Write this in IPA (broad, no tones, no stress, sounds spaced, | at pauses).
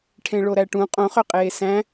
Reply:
ʈʰ ẽ ɭ o ɾ æ ʈ ũ qʼ õ χ ø qʼ eː s æ̃